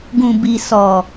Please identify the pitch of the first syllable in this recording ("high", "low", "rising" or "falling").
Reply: low